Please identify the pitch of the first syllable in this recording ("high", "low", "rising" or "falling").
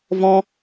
high